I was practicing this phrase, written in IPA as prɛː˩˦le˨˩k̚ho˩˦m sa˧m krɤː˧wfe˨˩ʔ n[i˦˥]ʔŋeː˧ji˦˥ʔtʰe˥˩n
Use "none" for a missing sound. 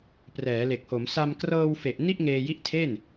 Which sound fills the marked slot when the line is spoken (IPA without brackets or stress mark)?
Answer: i˥˩